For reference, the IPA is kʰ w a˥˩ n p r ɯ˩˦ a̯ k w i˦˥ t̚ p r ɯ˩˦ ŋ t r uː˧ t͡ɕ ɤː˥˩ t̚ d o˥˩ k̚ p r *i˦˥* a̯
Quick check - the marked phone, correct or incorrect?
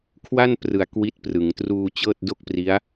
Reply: correct